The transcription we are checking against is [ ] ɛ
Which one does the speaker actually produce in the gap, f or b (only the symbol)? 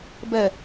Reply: b